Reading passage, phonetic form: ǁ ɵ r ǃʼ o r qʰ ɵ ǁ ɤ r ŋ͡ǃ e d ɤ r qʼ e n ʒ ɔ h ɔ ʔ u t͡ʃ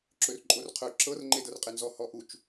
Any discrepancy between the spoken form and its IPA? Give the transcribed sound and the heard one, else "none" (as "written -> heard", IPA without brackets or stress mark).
ʒ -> z